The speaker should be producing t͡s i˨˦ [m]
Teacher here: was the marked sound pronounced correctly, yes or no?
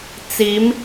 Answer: yes